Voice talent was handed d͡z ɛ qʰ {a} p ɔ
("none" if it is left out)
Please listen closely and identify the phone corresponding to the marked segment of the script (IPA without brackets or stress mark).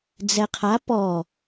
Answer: a